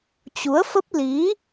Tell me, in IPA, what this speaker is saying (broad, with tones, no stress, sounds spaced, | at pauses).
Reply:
t͡ɕ u˨˦ ə̯ f ə˦˥ p̚ l i˨˦